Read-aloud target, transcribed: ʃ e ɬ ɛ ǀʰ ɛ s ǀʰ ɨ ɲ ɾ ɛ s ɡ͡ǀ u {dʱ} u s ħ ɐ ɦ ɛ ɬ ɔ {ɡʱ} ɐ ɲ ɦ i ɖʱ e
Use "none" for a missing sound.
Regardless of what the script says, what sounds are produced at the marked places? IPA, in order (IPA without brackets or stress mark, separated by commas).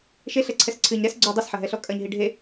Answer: dˤ, kʼ